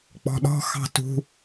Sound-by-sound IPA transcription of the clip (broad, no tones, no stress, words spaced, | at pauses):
k͡pɔ̤ɗɔ̤ xɑ̤tṳ